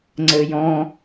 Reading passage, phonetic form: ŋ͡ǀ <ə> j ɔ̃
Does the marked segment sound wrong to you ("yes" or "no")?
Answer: no